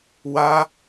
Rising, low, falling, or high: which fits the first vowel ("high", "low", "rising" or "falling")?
high